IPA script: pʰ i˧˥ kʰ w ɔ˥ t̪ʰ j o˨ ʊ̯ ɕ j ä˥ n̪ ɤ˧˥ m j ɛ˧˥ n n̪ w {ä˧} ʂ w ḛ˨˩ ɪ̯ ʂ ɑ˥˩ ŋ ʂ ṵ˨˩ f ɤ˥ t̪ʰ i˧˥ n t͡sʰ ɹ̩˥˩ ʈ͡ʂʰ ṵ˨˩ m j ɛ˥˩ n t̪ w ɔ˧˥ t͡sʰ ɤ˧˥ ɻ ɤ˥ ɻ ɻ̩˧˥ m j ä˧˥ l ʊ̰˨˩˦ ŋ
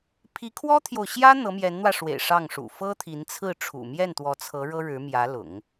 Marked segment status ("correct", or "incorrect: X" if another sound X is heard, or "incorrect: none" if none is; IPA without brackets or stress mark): correct